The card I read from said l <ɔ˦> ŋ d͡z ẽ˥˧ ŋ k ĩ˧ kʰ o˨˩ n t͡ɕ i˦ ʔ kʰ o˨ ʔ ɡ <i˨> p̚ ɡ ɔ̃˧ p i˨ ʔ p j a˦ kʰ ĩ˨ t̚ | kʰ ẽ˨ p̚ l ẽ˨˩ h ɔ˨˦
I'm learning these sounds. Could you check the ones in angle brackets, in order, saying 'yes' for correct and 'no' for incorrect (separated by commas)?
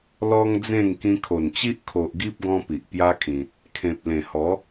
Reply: yes, no